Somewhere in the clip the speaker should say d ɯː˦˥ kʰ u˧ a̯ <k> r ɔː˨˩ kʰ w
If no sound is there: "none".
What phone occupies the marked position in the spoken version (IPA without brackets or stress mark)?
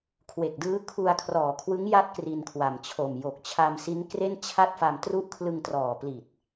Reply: kʰ